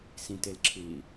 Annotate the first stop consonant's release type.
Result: plain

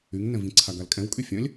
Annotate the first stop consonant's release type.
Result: click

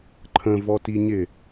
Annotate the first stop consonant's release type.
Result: click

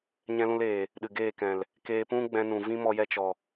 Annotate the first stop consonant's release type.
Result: implosive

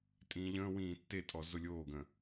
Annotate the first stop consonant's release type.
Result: ejective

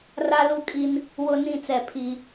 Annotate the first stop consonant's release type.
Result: ejective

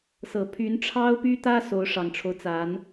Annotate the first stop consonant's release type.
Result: aspirated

